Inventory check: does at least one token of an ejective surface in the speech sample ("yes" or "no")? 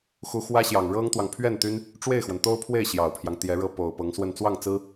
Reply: no